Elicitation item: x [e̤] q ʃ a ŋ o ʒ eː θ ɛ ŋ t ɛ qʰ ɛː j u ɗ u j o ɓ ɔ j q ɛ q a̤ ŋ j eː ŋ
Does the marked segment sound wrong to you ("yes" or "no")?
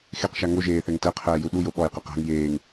yes